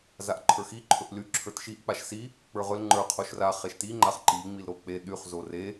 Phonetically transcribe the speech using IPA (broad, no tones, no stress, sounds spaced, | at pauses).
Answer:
z a ʔ ǃʰ ə˞ x i ǃʰ ɵ ʔ l y ǁʰ ə˞ t ʃ i ʔ k͡p a ʃ s i | k͡p ə˞ ʁ ɵ l ŋ͡ǃ ə˞ qʰ o ʃ r a χ e ʃ t i ŋ͡ǃ a χ ǃ i ŋ͡m i l ɾ o k͡p e ɗ y χ z o r e